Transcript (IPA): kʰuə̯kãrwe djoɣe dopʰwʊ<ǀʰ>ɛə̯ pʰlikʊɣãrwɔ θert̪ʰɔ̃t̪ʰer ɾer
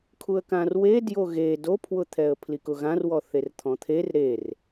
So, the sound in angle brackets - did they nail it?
no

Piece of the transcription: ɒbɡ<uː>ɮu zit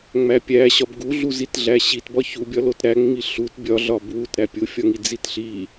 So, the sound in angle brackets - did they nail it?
no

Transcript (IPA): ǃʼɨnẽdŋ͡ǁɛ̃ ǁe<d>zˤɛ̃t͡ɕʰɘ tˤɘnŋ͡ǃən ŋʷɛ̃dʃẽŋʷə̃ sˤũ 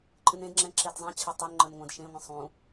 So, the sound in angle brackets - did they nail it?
yes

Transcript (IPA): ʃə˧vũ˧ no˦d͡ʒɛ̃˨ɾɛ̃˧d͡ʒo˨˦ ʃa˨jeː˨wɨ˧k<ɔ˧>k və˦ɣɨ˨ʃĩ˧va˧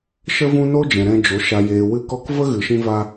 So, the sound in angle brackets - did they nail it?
yes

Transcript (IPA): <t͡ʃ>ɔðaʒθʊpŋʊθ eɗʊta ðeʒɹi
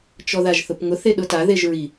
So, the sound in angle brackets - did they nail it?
yes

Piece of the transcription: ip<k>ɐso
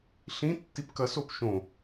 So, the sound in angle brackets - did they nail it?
yes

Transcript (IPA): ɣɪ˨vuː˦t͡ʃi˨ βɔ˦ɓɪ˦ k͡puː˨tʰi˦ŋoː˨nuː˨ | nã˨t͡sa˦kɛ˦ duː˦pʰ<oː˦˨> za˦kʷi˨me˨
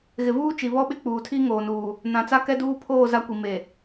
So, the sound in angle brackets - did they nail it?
yes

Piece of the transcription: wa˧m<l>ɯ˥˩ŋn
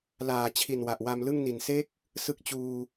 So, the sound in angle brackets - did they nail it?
yes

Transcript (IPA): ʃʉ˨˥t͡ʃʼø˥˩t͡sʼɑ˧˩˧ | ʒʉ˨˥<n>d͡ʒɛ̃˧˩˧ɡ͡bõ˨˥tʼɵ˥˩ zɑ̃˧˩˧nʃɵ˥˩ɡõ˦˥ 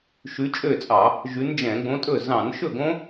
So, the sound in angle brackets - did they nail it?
yes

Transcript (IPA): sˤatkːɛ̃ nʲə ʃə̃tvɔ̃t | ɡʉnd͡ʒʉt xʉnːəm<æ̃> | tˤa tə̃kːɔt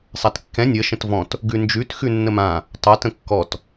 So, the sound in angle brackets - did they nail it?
no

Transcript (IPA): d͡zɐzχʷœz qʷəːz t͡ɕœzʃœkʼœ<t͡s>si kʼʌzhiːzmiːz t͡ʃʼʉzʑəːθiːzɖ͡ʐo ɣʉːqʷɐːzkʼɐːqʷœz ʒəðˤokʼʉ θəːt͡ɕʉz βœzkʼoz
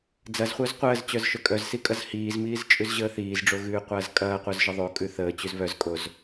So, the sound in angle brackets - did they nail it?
no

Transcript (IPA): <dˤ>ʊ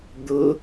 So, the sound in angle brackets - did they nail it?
no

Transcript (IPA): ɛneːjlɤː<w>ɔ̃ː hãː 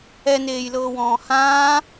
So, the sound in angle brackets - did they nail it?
yes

